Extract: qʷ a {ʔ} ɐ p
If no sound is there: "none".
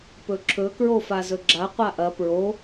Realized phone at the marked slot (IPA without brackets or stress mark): ʔ